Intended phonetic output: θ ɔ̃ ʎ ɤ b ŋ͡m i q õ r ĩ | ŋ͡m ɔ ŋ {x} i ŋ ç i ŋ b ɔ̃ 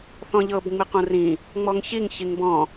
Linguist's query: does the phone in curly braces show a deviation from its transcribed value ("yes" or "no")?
yes